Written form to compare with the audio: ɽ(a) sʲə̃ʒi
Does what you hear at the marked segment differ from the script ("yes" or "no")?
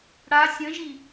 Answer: no